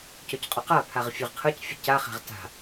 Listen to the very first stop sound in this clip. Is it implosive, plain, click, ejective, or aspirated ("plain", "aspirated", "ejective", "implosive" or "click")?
plain